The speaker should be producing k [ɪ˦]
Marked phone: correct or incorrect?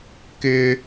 correct